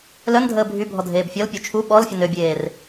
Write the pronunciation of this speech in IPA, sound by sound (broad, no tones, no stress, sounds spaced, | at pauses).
l œ n dʱ əː bʱ y bʱ ɔ dʱ eː b fʲ ɔ l pʲ ø t͡ʃʰ u ɓ ɔ l fʲ ə n ø bʲ eː r